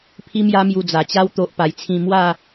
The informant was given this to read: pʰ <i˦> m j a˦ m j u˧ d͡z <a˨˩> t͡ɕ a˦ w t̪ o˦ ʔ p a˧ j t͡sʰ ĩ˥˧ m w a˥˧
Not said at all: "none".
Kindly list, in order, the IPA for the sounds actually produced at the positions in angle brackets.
i˦, a˨˩

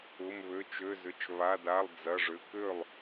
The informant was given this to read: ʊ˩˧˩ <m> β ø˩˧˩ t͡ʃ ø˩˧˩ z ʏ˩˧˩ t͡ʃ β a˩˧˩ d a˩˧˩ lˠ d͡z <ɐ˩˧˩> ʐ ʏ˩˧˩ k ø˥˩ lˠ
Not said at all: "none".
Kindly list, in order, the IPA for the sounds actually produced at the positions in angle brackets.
m, ɐ˩˧˩

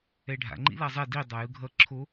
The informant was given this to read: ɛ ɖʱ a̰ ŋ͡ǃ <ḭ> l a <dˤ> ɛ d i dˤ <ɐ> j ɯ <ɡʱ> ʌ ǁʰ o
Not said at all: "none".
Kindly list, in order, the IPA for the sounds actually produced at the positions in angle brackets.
ḭ, zˤ, a, ɡʱ

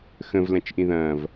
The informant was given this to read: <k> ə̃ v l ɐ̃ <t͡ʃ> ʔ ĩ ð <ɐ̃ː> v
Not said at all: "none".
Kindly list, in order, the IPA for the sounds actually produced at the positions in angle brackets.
x, t͡ʃ, ɐ̃ː

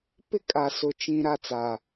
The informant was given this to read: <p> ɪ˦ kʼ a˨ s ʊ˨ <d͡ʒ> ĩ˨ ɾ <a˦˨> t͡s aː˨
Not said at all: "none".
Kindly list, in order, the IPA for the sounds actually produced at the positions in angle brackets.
p, t͡ʃ, a˦˨

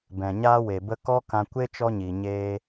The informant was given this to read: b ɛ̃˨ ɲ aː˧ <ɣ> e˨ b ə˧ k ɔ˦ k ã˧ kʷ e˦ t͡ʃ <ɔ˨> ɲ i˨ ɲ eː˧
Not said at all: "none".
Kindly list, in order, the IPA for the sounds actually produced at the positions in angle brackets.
w, ɔ˧

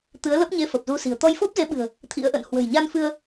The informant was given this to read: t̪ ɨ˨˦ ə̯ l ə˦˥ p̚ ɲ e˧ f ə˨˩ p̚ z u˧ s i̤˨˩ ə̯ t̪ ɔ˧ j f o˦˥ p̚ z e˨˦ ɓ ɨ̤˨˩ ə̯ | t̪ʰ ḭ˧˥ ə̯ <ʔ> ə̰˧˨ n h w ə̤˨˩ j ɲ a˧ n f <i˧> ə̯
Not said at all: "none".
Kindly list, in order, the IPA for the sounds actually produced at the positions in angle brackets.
ʔ, ɨ˧

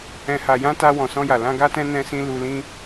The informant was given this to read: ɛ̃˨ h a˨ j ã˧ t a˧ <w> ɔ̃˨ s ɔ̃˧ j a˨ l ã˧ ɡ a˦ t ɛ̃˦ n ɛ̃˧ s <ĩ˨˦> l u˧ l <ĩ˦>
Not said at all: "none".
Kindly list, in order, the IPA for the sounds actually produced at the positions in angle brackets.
w, ĩ˧, ĩ˦

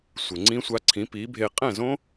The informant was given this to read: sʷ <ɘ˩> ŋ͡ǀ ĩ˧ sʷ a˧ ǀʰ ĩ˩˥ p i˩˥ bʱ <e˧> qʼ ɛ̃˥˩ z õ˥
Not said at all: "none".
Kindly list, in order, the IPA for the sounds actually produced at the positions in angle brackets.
ɘ˩, e˧

